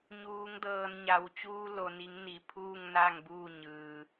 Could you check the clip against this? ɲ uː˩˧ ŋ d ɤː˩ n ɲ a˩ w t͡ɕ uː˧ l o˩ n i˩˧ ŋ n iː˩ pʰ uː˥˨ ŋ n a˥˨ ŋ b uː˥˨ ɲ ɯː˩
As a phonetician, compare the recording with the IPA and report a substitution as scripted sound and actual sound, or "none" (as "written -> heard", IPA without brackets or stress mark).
iː˩ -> i˩